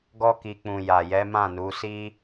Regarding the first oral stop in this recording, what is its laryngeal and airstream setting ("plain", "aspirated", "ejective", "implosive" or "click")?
plain